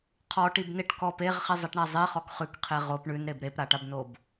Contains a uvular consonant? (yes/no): yes